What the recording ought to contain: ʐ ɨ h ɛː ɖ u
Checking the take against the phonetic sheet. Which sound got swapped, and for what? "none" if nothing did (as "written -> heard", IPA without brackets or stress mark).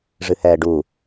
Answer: none